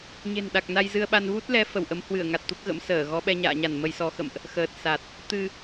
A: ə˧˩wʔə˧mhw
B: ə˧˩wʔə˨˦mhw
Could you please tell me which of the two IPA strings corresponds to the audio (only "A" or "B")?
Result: B